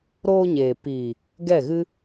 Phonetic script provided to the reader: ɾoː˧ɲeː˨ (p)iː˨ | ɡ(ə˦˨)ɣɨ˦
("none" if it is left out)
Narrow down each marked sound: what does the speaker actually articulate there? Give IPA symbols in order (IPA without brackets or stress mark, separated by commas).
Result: p, ɛ˦˨